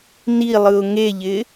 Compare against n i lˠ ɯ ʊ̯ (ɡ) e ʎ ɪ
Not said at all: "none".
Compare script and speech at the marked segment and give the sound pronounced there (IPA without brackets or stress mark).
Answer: ŋ